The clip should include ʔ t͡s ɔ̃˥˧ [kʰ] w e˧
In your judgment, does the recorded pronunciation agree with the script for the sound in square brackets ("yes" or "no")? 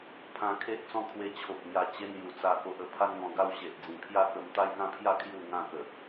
yes